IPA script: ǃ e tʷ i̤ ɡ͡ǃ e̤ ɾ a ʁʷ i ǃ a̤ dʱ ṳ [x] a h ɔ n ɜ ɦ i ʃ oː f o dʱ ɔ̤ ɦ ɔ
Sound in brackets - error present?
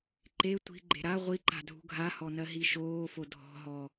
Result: yes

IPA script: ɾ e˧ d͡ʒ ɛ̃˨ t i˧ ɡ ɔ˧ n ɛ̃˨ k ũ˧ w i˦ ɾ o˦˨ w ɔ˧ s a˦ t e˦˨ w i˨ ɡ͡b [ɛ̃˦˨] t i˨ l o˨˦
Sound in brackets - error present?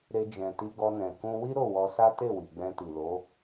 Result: yes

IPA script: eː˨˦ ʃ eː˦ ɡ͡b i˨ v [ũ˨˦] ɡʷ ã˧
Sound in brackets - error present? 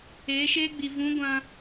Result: no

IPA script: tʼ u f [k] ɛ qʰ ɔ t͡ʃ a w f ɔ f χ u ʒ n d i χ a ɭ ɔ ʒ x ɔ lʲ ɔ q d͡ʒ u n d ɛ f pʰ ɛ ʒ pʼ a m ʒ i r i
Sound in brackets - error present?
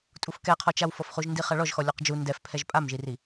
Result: no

